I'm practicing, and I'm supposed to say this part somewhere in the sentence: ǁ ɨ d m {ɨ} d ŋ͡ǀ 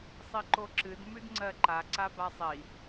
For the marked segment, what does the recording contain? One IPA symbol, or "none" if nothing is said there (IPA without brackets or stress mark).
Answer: ʉ